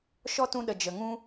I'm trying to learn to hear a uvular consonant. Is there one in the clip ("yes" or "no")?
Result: no